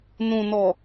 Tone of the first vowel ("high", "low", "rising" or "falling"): low